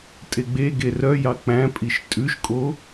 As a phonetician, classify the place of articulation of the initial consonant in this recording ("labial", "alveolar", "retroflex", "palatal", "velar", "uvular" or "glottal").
alveolar